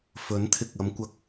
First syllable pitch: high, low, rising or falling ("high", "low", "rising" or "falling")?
rising